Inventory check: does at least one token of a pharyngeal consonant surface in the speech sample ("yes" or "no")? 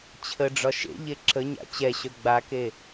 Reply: no